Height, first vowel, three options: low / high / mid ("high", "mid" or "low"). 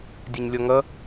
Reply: mid